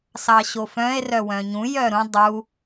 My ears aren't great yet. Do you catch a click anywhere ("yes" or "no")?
no